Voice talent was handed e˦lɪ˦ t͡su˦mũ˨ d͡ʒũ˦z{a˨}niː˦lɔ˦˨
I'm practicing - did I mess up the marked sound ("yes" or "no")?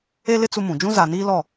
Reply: no